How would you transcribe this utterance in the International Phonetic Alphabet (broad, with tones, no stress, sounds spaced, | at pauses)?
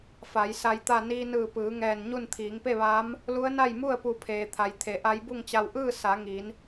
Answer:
f a˩˧ j s a˧ j t̪ a˥˨ n iː˧ n ɯː˧˩ p ɯː˩˧ ŋ ɛː˧˩ n ɲ u˥˨ n t̪ʰ iː˩˧ ŋ p e˥˨ ʋ aː˧˥ m | l u˧˥ ə̯ n a˥˨ j m u˥˨ ə̯ p u˧˩ pʰ eː˩ t̪ʰ a˩ j t̪ʰ e˩˧ ʔ a˧˥ j b u˥˨ ŋ t͡ɕ a˧ w ʔ ɯː˥˨ s a˩˧ ŋ i˩˧ n